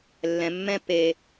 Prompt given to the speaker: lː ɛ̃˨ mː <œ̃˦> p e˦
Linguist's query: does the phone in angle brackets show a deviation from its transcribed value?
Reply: yes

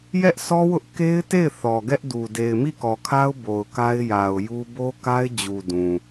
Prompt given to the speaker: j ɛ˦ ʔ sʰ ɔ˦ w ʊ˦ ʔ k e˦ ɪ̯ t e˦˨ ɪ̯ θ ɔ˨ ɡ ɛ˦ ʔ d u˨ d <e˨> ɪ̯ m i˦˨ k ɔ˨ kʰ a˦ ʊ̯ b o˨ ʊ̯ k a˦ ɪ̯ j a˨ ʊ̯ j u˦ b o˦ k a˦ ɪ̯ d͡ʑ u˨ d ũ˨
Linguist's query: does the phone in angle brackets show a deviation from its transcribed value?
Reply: no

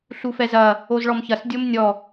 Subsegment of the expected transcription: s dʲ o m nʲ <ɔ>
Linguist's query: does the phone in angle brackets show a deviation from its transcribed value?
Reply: no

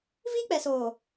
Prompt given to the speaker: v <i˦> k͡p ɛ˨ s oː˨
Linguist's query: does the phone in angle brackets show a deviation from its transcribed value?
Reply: no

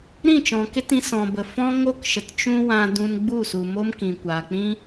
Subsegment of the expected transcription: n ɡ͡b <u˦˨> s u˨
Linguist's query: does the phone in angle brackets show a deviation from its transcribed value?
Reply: no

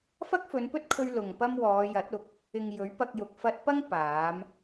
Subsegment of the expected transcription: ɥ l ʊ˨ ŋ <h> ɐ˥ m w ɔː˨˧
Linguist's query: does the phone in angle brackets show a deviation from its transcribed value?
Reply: yes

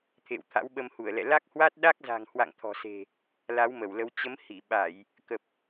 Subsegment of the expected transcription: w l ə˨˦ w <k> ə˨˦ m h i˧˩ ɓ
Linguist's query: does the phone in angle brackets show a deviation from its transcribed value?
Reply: yes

